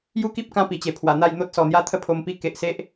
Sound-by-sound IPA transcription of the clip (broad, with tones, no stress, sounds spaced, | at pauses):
j u˦ k i˦ p̚ k ã˧ p i˨˩ t͡ɕ e˨˩ pʰ w a˨˩ n̪ a˥˧ j n̪ o˦ t̚ s ɔ˨˩ n̪ j a˦ t̪ʰ ə˥˧ pʰ o˧ m p i˦ k e˨ ʔ s e˦ ʔ